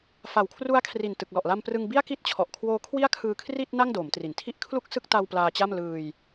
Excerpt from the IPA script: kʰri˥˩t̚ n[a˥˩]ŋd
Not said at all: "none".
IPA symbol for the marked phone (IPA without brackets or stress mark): a˥˩